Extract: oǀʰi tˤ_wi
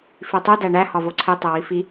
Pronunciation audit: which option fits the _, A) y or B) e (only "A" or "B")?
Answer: B